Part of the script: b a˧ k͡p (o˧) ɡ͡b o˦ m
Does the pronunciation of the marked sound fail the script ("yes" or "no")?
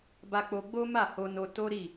no